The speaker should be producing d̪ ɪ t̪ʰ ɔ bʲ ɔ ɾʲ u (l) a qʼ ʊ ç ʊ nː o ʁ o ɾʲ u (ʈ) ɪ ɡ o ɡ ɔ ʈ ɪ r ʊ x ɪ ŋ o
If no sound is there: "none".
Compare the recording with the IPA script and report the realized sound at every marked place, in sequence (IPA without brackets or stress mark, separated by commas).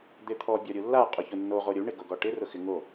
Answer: lː, ɳ